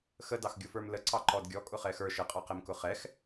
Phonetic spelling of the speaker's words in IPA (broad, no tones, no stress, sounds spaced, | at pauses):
x ə d ɑ x ɡʲ ʊ f ə˞ m l ə ǀ ɑ ǃ ɔ d ɡʲ ɔ kʼ ʊ χ ɛ x ə˞ ʃ ə qʼ ɑ q ɛ m k ʊ χ ɛ x